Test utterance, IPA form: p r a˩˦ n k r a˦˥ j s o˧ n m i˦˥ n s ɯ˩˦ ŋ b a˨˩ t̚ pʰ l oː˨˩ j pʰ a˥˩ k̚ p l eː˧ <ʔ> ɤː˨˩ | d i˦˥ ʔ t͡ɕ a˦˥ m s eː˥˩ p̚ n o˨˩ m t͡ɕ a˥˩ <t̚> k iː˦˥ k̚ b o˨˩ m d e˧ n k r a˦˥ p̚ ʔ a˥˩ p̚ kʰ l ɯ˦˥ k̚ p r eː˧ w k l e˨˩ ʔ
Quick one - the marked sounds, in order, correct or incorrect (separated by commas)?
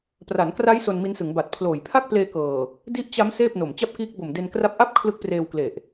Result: incorrect, incorrect